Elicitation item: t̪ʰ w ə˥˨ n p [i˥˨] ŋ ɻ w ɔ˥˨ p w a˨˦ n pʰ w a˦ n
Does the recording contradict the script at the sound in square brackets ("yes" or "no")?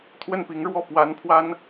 yes